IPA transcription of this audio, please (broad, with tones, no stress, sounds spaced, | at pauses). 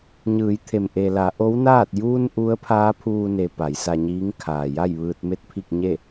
ɲ ɯː˩˧ j t̪ʰ e˩ m ʔ e˩ l a˩˧ ʔ o˧˥ w n aː˥˨ t̚ j u˧ n ʔ u˧˥ ə̯ pʰ aː˧˥ pʰ uː˧ n e˩ p a˩˧ j s a˧ ɲ iː˧˥ ŋ kʰ aː˩ j a˥˨ j ʋ ɯː˧ t̚ m e˥˨ t̚ pʰ i˥˨ k̚ ɲ e˥˨